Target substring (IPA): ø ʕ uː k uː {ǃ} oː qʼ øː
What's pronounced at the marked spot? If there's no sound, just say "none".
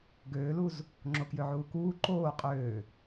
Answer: ǃ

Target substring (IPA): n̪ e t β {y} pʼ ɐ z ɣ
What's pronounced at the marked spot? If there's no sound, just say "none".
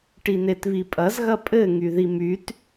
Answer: i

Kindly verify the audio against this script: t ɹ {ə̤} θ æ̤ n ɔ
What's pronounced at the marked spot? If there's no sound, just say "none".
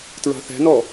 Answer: ɑ̤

